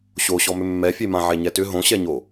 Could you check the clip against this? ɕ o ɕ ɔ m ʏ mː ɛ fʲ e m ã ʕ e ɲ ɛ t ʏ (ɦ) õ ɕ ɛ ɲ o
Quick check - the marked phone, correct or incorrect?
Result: correct